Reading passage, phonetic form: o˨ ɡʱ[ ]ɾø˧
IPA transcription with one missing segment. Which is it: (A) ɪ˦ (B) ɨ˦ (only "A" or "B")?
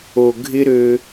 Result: A